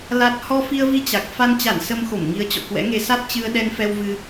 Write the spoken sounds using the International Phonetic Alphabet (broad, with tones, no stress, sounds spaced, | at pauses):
l a˦˥ t̚ h ɔ˧ f i˧ ə̯ v i˧ t͡ɕ a˨˩ k̚ f a˧ n t͡ɕ a˧˩ n s ə˧ m x o˧˩ m ŋ i˨˦ ə̯ t͡ɕ ɔ̰˧˨ k w ɛ̰˧˥ ŋ e˧ s a˦˥ t̚ t͡ɕ ɨ˧ ə̯ ɗ ɛ˧ n f ɛ˧ w v ɨ˧